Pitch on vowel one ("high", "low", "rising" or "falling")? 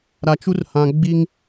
low